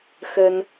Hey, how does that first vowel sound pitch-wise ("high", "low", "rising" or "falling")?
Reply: high